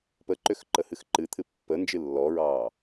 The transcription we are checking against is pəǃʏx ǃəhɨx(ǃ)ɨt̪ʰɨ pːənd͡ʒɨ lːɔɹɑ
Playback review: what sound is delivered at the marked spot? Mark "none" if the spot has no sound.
ǃ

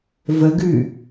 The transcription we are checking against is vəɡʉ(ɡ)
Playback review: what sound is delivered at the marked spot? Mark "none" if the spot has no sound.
none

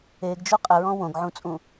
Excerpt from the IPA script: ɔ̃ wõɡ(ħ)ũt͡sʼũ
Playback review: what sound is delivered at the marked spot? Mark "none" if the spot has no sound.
ʕ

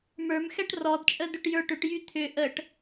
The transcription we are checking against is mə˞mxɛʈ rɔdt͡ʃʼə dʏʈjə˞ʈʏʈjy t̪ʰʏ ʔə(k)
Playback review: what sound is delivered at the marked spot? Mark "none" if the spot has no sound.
ʈ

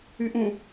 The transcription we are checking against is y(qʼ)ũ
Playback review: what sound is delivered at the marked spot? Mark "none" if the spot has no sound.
ʔ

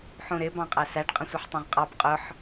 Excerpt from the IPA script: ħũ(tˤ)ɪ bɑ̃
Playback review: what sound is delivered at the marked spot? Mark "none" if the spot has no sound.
ɾ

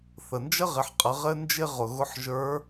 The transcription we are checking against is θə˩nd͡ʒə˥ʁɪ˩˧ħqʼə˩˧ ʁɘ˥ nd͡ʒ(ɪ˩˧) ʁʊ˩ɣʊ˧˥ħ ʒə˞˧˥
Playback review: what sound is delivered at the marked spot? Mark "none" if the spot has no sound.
ɪ˥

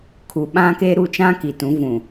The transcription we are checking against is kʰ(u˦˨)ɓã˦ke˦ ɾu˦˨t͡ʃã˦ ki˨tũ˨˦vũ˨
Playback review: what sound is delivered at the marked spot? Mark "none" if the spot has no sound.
u˨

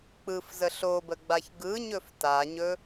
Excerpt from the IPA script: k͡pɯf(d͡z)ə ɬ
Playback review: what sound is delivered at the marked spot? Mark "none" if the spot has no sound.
z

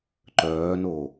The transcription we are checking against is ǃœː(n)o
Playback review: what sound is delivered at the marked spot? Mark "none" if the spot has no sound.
n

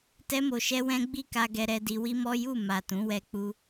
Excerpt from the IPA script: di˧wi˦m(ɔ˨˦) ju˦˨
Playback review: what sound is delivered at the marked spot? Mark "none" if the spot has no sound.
ɔ˦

